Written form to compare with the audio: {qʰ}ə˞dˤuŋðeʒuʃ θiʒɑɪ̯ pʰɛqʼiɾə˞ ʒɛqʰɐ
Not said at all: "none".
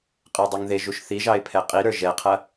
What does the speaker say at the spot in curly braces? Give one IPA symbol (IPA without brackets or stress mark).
qʼ